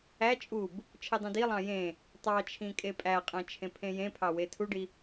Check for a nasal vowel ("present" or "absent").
present